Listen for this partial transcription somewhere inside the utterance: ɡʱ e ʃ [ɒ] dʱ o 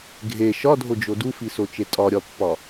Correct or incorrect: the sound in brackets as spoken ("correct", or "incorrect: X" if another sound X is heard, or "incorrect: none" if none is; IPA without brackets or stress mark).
correct